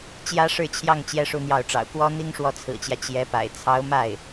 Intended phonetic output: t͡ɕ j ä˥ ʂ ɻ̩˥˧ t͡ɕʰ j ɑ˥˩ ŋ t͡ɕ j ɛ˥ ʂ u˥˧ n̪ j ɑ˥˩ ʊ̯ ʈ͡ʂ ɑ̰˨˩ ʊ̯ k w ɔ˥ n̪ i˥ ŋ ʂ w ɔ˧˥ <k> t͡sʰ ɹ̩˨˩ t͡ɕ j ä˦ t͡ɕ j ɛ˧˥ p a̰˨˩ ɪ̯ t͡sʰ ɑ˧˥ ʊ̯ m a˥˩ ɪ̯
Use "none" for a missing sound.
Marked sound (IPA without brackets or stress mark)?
none